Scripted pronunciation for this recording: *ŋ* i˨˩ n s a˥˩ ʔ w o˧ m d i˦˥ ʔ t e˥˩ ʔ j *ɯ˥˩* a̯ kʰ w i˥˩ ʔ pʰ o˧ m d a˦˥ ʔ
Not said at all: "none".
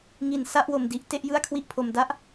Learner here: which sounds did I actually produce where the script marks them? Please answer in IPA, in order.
ŋ, ɯ˥˩

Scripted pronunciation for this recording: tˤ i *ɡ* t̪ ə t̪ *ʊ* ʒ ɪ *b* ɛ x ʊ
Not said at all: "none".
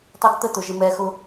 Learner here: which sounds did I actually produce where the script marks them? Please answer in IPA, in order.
ɡ, ʊ, m

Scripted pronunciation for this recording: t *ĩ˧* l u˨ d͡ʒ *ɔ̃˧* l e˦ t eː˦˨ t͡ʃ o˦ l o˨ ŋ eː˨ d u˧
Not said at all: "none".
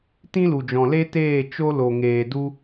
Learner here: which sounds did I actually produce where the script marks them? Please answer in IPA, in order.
ĩ˦, ɔ̃˨

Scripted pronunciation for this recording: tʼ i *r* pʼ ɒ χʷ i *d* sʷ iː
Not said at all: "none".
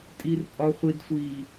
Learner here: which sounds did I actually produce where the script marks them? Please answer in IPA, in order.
r, d

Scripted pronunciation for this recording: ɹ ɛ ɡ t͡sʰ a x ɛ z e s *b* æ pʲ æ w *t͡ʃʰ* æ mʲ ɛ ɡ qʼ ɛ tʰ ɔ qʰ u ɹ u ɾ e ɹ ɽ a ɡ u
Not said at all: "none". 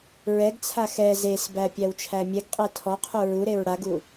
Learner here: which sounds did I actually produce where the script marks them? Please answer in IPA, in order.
b, t͡ʃʰ

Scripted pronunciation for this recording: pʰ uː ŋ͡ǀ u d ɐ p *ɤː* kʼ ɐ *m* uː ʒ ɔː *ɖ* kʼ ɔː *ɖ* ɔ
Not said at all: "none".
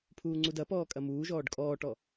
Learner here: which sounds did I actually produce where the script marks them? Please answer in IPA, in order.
ɔː, m, ɖ, ʈ

